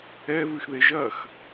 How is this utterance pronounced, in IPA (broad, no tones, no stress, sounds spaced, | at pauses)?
ɛ v ɨ x ð e ʒ ɐ x